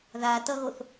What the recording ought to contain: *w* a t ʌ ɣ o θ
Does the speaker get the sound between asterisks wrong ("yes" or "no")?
yes